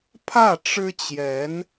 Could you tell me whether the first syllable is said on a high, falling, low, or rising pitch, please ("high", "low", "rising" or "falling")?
falling